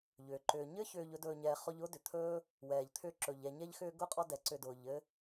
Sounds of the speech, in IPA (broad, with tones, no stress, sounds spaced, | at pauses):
ʎ ʏː˩ ǃ ʏː˩ ɲ ɘ˦ ç ʏː˨ ʎ ɵ˦ d ɵː˨ ɲ ɛː˨ χ ɔ˦ ʎ ʊː˥ d ʏ˩ t̪ʰ ɵː˥ | w ɛː˩ ʎ t̪ʰ ʏː˦ ǁ ɵ˩ ʎ ɛ˨ ɲ ɛ˦ ʎ x ʏː˦ ɡ ʊ˥ qʼ ɔ˦ d ɛ˩ ǀ ʏ˨ d ʊː˩ ʎ ɘ˦